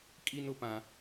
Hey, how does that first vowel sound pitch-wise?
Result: high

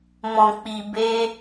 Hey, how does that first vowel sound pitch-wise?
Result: low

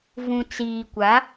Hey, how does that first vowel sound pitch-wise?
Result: low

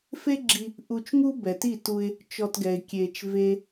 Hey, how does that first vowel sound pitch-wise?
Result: high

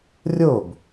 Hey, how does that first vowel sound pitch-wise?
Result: falling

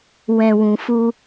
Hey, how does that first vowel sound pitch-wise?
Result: low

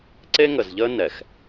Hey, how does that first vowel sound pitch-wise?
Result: high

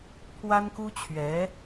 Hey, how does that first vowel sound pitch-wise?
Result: high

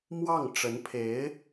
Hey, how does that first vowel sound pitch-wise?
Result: falling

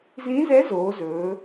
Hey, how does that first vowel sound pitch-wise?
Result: rising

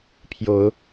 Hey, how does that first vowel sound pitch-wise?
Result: rising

